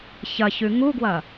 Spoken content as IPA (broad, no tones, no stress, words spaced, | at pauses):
çɐçʉ ŋuɡwɐ